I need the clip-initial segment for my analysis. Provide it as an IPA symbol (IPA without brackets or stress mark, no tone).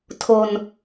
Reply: tʰ